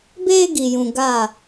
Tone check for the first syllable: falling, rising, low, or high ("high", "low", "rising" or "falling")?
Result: high